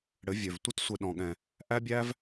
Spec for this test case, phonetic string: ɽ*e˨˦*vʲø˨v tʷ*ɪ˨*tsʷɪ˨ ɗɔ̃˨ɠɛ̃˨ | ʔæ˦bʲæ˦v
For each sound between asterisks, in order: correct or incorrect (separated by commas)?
incorrect, incorrect